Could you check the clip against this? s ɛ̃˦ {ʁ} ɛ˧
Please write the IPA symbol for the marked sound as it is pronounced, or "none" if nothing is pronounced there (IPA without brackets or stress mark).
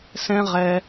ʁ